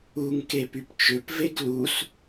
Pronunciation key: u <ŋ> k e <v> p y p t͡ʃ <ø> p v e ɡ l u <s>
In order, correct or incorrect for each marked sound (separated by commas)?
correct, incorrect, correct, correct